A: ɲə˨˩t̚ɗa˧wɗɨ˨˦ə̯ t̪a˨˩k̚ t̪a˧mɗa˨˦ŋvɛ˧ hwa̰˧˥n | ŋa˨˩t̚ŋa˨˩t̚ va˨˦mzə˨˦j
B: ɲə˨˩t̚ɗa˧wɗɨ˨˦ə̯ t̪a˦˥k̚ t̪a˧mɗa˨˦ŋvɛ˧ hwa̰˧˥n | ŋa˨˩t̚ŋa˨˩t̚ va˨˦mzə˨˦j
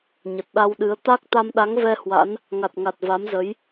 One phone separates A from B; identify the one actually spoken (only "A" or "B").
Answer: B